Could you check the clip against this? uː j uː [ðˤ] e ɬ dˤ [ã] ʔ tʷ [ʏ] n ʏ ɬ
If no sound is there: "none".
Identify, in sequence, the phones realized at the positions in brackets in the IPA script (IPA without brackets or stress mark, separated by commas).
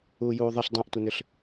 ðˤ, ã, ə